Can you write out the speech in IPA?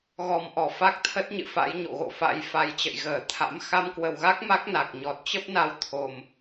ɣɔ˨˩mʔɔ˧˩ fa˦˥k̚t̪ʰə˦˥t̚ɲɨ̰˧˨ fa̰˧˥jɲo̰˧˨ɣo̰˧˨fa̰˧˥j fa˨˩jt͡ɕə̰˧˨j ɣəː˧˩ t̪ʰa̰˧˥m xa˧mkwə˨˩wɣa˦˥k̚ ma˦˥k̚na˨˩k̚ ɲɔ˨˩t̚t͡ɕə˦˥p̚na˧w t̪ʰo˨˩m

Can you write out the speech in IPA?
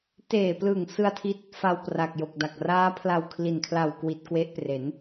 teː˨˩plɯ˨˩ŋ sɯ˧a̯tʰi˦˥t̚ | fa˧wpra˨˩k̚jo˨˩k̚ da˨˩k̚raː˦˥pʰla˧w kʰli˨˩nkʰla˨˩wkwi˨˩t̚ kwe˦˥ʔpre˩˦n

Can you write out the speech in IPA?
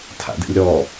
tʰa̰dɛ̰lʲɾɔ

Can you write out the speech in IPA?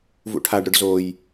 vṵʈʰaɖɾʊɖ zoj

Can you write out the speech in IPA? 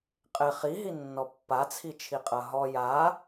qʼɪ χiɦi nːɔpːat͡sʰit͡ʃʰi qʼɐɦɔ ja

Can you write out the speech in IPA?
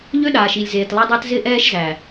ʎø˦ɗaː˨ʃ i˨lʲzeː˨tlˠe˦dˤæ˦t zɪː˦ʔɛː˦ʃ zæ˨

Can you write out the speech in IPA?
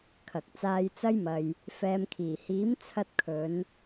kʰɐ˨k̚t͡saː˧jt͡sɐ˥jmɐ˧j | fɛː˨mkʰiː˨˩hiː˨˥m t͡sʰɐ˧t̚kʰɵ˨˧n

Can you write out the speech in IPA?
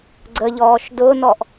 ɡ͡ǀəʎɔːʃ dʊːnɔʔ

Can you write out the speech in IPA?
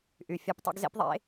ʔy˨fʲɑ˧p tˤo̰˧ɡzḛ˧pðˤḛ˨˦

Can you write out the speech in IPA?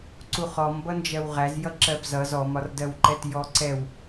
ǀuχɔmbʌnd͡ʒɜw ʁæzjʌ ǁɜbzʌz ɔmɒrdɜwǃɛt jɔǀɛw

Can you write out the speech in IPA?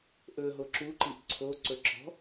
ʔɵɦo ǁuǃiʔ ǀʰoǀɵ ǁɔ̤

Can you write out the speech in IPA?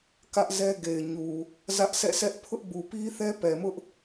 kä˦ʔzɛ˦ɡe˨ɪ̯ɲu˨ | zä˦ʔsɛ̰˦˨ sɛ˦ʔ pʰʊ˦ʔbu˨pi˦θɛ˦ pɛ˨mʊ˦ʔ

